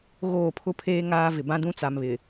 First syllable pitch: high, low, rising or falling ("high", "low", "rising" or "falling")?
falling